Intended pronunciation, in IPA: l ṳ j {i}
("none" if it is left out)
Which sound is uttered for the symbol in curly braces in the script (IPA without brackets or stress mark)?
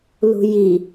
i